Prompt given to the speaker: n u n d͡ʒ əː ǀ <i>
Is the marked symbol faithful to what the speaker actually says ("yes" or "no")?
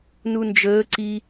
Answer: yes